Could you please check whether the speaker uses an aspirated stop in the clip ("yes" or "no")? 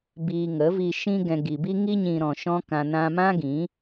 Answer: no